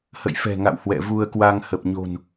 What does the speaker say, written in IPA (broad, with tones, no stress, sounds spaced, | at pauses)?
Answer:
h ə̰˧˨ j f ɛ̤˨˩ ŋ a̰˧˨ w h w ɛ̰˧˨ v u˧ ə̯ k w a˧ ŋ h ə˨˩ p̚ ɲ o̤˨˩ n